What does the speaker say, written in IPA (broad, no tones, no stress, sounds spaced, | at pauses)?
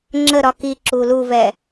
ŋ͡ǁ ə ɾ ɒ k i ǁ u l u v ɛ